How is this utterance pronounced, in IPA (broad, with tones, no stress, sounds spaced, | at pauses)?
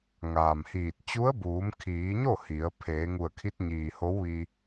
ŋ aː˩ m h iː˧˩ t̚ t͡ɕ u˧˥ ə̯ b uː˩˧ m kʰ iː˩˧ ɲ o˥˨ h i˩˧ ə̯ pʰ eː˩˧ ŋ u˧˩ ə̯ kʰ i˧˥ t̚ ɲ iː˩ h o˧˥ w ʋ i˧